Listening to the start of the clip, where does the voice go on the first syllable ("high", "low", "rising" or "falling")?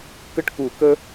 high